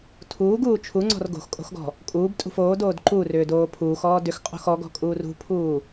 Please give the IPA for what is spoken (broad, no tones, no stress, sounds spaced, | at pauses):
tʰ uː ɡ uː t͡ʃʰ u ŋ͡ǀ ɔ̤ r ɡ o̤ x kʼ o̤ x ɡ ɔ̤ | kʼ uː b tʼ ṳ f oː d oː d ǃ u r ʏː d oː pʰ uː x ɔː d ʏ x qʼ o̤ x ɔ ɡ ɔ̤ kʼ uː r ṳ pʰ uː